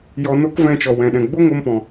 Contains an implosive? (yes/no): yes